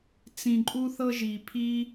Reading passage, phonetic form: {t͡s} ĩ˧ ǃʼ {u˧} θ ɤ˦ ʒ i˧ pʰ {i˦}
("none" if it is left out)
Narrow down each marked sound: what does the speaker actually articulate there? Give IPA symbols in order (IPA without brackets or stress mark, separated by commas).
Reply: t͡s, u˦, i˦